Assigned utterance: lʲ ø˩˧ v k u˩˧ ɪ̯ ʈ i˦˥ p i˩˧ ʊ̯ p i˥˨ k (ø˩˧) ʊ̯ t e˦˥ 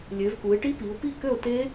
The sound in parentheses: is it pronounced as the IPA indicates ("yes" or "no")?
no